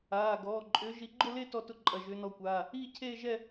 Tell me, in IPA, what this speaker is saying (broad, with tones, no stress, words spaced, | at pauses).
aː˩˧˩ɡɔː˩˧˩ ǃʼʏː˨˦ʒi˨˦ɡ͡ǃʊ˥˧le˥˧ tɔ˥˧tʊ˥˧ ǃʼɐ˩˧˩ʒʏː˨˦nɔ˨˦kʷaː˩˧˩ | iː˥˧cʰeː˥˧ʒɛ˥˧